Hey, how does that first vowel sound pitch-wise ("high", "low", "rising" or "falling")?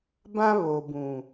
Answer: high